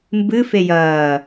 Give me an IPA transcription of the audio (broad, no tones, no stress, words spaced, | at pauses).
mbɨ fejɐː